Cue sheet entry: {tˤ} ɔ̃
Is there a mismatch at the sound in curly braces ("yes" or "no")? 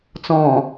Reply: yes